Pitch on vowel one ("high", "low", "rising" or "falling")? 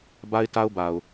high